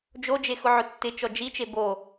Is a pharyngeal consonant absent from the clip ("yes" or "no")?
no